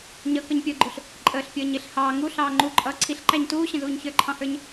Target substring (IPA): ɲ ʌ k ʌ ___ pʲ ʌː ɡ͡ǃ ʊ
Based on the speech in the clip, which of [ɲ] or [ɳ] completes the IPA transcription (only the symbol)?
ɲ